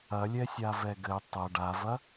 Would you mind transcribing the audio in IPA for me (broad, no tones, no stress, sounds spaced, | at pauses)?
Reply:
ɐ lʲ ɛ sʲ a v ɛ ɡ ɘ tˤ ɐ ɖ a v ɐ